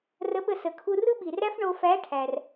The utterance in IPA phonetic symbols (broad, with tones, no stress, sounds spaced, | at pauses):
r ə˧˥ ɓ ə˧ s ə˩ kʰ u˧ r ɯ˥ ɓ i˩ r æ˥ f ɳ o˧ f æ˧˥ ʈʰ æ˩ r